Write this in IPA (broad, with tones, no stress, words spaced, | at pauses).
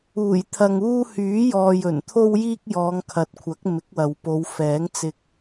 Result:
uː˨˩jt̪ʰɐ˨ŋ uː˧ hyː˨˥jɔː˨j ɵ˨˩nt̪ʰo˧wjiː˧k̚ jɔː˨˧ŋkʰɐ˨t̚kʷʰɐ˨˥k̚ mɪ˨˥k̚wɐ˨wpo˨˧w fɛː˨˥ŋt͡sɪ˧k̚